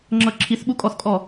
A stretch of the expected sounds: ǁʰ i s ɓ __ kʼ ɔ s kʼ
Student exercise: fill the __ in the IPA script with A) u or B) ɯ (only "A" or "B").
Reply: A